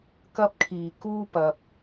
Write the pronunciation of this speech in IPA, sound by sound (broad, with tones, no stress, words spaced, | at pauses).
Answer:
kɐ˥p̚kʰiː˨˩kuː˥pɐ˨p̚